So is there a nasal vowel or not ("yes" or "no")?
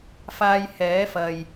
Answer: no